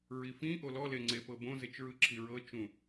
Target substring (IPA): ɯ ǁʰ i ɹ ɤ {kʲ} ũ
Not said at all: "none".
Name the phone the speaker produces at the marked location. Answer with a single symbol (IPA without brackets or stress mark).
t͡ʃ